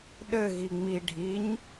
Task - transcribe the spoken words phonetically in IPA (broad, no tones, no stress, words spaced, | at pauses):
ɗɘɣi ŋ͡mi ɖʱiɲ